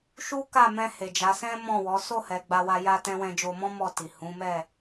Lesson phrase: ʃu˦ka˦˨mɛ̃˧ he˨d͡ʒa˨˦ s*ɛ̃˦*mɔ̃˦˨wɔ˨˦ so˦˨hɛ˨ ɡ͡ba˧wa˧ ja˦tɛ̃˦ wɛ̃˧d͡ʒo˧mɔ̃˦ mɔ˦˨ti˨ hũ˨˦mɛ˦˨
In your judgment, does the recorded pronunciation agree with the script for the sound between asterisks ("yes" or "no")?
yes